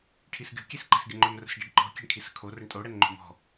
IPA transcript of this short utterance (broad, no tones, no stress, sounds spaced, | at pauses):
ʈʰ i s ɡʲ o̤ kʲ e s ǃ ɛ̤ s ɡʲ ə ŋ͡ǃ ɵ m r ə̤ s ɖ e ɖ ǃ ɔ̤ kʲ e̤ ɳ kʰ i s ə̤ kʰ o r ə ɳ tʼ o ɽ ɛ n ŋ͡ǃ o̤ m ɔ̤